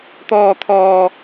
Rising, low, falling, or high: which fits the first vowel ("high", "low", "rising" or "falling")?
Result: high